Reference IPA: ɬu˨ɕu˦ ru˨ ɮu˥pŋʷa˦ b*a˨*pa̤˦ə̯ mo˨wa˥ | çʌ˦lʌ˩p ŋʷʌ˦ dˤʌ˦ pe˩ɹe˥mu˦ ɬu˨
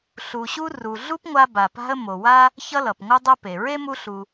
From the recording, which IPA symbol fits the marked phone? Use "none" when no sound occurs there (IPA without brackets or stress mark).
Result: a˨